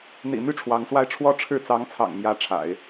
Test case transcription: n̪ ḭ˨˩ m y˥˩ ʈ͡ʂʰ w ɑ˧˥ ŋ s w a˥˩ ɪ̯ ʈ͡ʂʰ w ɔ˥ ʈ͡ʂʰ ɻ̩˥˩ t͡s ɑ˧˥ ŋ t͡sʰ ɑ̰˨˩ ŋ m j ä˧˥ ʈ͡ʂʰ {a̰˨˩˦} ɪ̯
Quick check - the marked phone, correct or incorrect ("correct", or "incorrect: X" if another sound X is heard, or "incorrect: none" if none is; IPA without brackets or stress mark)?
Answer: correct